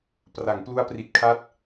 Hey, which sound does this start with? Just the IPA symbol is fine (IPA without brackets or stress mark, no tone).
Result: p